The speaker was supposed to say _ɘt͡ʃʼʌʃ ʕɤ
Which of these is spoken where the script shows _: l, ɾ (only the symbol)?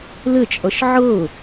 l